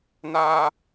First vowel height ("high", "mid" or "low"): low